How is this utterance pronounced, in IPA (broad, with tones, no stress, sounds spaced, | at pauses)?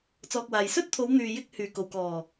t͡s ɔː˨ k̚ w aː˨ j s ɵ˥ t̚ t̪ʰ o˨˧ w n̪ yː˨ j ɪ˧ k̚ h yː˨˩ k o˨˩ w k ɔː˨˩